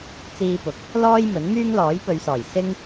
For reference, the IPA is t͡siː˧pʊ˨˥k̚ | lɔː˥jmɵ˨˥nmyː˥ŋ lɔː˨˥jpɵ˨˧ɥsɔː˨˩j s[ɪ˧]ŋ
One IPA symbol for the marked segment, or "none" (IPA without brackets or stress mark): ɪ˥